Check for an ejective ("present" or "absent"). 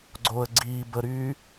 absent